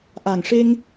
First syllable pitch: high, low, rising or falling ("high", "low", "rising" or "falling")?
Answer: low